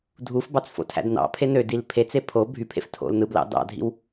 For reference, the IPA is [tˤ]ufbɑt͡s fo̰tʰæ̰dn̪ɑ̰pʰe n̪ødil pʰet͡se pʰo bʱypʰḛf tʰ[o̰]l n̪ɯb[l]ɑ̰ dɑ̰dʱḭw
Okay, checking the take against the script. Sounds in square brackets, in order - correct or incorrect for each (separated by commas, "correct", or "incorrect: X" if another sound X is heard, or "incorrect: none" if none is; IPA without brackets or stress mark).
incorrect: dʱ, correct, correct